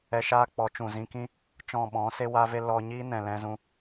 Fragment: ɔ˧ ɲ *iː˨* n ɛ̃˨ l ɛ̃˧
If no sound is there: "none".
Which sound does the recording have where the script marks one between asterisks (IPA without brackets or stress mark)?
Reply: iː˦